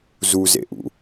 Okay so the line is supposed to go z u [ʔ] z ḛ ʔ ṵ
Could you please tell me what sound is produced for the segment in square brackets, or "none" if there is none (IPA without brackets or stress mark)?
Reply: none